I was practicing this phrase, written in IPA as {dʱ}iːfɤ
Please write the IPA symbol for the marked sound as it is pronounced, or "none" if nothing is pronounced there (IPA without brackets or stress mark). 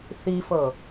θ